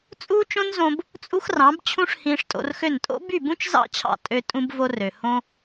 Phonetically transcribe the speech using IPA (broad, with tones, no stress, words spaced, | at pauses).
t͡sʼuː˦t͡ʃõ˦nzõ˧b | t͡sʼu˦xrɑ̃˨˦bt͡ɕʰũ˦ʂ hĩː˧ʂtʼo̰˧rxø˦˨n tʼo̰˦by˦˨bũ˦t͡ʃzɑ̰˦˨ t͡ɕʰɑ̰˦˨ tʼø˧ tʼũ˦bvo˦rø˨ hõ˦